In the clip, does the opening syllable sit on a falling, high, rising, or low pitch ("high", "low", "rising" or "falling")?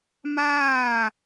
falling